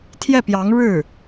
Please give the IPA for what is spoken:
t̪ʰjɛ˥˩pjɑ˧˥ŋ ɻɻ̩˥˩

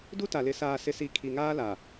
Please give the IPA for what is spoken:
du˦ta˨lɪ˨ saː˨sɪ˨si˨ kʰi˨ŋaː˦la˨

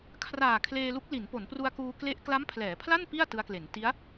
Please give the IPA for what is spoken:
kʰraː˨˩kʰleː˧lu˦˥k̚ li˩˦npo˩˦npru˧a̯kuː˧ kle˦˥ʔ kla˦˥mpʰlɛː˩˦pʰla˥˩n pi˥˩a̯ tɯ˦˥a̯kle˩˦n ti˦˥a̯

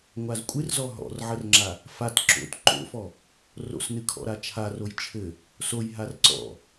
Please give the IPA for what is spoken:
ŋʷazkʷʼɨrzɔ ɦɔ̰rʕərŋ͡ǁa | fat ǁo̰t ǃo̰fɔ | ro̰snɨkʰɔ̰ ɾat͡ʃʰaroj t͡ʃʰɘ | soj ɦarǀɔ̰

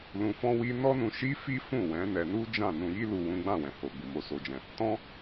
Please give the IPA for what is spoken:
lũ˧fɔ̃˦wi˦ nɔ˦nũ˧ ʃi˦ fi˦fũ˦˨ wɛ̃˨˦nɛ˧ nu˦d͡ʒã˦˨ nũ˧ji˦lu˧ wũ˦ ɡ͡bã˦˨wɛ̃˨ho˨ɡ͡bu˨ mo˧so˧d͡ʒɛ̃˧ | tɔ̃˦

